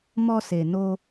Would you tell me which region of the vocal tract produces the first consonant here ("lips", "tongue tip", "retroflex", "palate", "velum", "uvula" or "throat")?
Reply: lips